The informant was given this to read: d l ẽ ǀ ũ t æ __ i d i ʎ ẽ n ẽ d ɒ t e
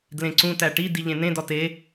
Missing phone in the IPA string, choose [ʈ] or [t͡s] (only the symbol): ʈ